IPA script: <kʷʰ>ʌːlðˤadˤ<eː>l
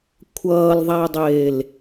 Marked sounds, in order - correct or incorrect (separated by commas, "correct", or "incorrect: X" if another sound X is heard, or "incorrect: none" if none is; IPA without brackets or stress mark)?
correct, correct